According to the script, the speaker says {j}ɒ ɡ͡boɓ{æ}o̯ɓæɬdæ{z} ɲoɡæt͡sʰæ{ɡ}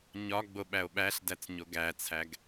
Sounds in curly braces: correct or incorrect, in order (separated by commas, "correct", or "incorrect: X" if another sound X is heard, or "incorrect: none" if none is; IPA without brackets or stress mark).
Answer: incorrect: ɲ, correct, incorrect: t͡s, correct